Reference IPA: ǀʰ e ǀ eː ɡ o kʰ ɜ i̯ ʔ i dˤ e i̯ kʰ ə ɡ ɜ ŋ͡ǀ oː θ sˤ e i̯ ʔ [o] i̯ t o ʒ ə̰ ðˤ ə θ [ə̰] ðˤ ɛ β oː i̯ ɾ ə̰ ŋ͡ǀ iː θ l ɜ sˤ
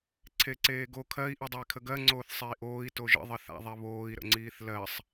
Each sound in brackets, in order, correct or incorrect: incorrect, incorrect

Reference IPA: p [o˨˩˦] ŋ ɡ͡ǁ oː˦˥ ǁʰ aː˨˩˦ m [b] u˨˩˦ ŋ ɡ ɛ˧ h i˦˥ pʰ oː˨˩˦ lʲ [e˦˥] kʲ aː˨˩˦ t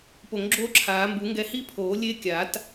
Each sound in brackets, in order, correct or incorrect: correct, correct, correct

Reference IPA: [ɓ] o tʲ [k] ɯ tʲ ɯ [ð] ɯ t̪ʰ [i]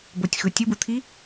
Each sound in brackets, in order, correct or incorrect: incorrect, incorrect, incorrect, correct

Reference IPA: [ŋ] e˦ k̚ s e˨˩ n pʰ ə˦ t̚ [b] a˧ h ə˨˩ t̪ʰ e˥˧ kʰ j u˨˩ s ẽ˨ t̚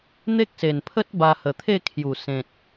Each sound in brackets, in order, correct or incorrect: incorrect, correct

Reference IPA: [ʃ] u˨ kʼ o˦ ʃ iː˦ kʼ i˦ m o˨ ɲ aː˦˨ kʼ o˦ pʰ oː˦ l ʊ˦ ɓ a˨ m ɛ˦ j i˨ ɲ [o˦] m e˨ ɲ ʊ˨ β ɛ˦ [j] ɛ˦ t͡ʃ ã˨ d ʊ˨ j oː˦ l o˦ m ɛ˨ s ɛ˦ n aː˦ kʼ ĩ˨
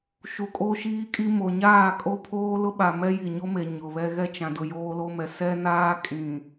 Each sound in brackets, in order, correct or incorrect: correct, correct, incorrect

